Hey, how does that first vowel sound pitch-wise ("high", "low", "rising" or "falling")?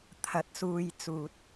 rising